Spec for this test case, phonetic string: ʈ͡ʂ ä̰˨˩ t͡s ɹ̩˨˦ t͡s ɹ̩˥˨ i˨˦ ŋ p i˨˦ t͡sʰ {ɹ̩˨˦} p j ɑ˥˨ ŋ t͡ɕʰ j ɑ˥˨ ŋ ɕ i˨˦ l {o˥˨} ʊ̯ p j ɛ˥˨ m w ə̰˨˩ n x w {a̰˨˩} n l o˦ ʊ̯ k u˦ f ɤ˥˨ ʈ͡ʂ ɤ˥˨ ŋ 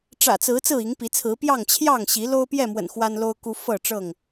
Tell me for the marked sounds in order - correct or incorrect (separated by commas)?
correct, incorrect, incorrect